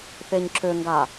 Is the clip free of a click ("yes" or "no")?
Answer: no